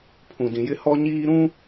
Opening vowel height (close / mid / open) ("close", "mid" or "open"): close